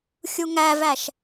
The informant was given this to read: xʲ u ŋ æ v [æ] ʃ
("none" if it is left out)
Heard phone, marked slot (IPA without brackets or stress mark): æ